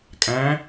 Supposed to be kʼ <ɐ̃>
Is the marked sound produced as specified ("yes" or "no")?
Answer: no